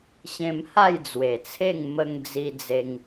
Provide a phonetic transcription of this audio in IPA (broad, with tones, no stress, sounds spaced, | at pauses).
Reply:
ɕ ẽ˧ m h a˥˧ j d͡z w e˨˩ t͡sʰ e˥˧ ŋ m ə˧ ŋ d͡z i˧ d͡z e˧ ŋ